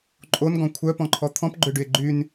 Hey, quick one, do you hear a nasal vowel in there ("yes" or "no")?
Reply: yes